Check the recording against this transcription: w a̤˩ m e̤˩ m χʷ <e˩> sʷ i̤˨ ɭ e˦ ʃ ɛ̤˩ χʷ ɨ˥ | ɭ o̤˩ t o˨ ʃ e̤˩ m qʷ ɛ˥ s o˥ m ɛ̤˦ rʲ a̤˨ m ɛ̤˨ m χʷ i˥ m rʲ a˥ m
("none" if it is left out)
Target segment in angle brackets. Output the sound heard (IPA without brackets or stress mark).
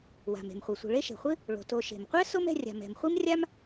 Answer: ɛ˩